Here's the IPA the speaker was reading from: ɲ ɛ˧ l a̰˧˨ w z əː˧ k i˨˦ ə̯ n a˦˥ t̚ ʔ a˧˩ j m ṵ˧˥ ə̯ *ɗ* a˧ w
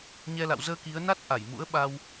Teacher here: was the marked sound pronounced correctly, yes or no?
no